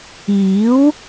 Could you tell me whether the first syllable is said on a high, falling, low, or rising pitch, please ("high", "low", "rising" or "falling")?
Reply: rising